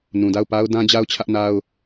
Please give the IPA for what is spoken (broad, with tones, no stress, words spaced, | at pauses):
nũ˨da˦˨ʊ̯pa˦ʊ̯ dã˦d͡ʑa˦ʊ̯t͡ɕʰä˦ʔna˦ʊ̯